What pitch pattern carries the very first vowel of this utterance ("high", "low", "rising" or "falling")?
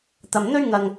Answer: low